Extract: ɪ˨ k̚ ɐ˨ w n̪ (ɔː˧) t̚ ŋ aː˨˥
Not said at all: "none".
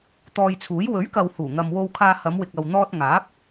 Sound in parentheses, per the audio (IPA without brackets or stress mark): ɔː˧